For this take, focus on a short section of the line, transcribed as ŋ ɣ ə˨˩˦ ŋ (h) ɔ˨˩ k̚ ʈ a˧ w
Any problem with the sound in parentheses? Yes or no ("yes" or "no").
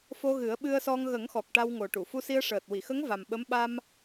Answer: yes